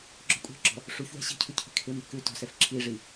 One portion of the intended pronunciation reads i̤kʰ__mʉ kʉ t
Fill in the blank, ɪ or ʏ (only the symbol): ɪ